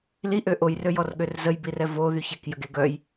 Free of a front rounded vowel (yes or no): no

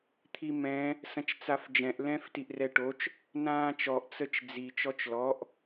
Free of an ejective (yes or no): yes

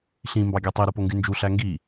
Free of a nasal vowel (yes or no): no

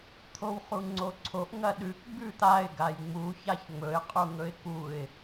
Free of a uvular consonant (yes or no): no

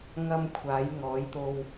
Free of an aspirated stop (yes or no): no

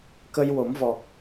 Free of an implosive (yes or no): yes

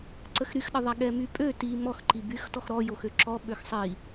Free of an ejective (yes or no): no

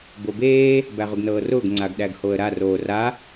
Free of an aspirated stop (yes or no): yes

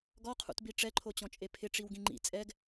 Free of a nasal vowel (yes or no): no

